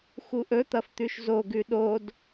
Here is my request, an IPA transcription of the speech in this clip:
xuʔɵ t̪ɐft̪ʉʃzo ɡʉɗod

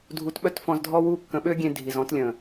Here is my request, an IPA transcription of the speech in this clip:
dʱu˧t ɓœ˦tfɔ̃˧zdʱɔ˦wuː˦ kːə̃˧ɓø˦ɡʲẽ˧ dʱi˨zɔ̃˧tlʲə̃ː˨

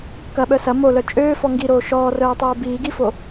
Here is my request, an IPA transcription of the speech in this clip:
kɐɓœ sɐ molœ t͡ʃʼøːfɔ ŋɡiɾoː ʃɔːrœːtˤoː biːɡifo

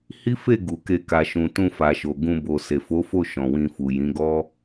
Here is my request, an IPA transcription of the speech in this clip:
hi˦fe˦˨ ɡu˨ke˧ ka˨ʃũ˨ tũ˧fa˨ʃo˨ ɡũ˧ bo˨se˨fo˨˦fo˦˨ ʃɔ̃˨wĩ˧fu˨ jĩ˨˦ɡɔ˦

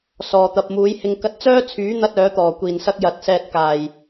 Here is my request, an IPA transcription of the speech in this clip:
sɔː˨t̪ɐ˨p̚ muː˨˥jhɪ˧ŋ kɐ˧t̚t͡sœː˥t͡sʰyː˨˥ n̪ɐ˥t̚ œː˨˥t̪ɔː˨˩ kʷiː˨˩nsɐ˧k̚ jɐ˨t̚sɛː˧t̚kaː˨˩j

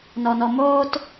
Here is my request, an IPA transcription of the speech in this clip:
nɔnɔmoːt

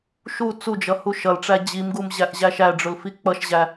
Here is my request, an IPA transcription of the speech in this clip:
ʃu t͡sud͡ʒʌ huʃʌlʈ͡ʂæ d͡ʑimɡum ʑæʔʑæʃæɖ͡ʐʊl fik͡pʌʃʑæ

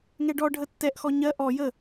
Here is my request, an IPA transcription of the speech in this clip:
ŋɛɖɔ ɖʱətːɛʔxɔ ɲɜ ʔɔ jə

